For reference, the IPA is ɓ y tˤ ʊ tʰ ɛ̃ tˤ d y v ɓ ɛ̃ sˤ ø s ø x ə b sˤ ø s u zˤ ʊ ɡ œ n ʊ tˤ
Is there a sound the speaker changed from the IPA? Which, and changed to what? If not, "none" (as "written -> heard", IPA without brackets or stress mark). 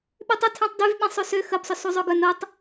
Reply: none